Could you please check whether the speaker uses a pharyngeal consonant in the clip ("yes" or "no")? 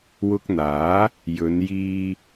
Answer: no